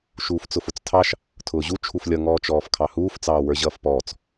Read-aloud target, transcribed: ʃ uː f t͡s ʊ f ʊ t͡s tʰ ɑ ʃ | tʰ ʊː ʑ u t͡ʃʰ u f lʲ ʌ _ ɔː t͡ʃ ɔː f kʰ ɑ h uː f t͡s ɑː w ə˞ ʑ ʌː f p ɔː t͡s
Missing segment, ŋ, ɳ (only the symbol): ŋ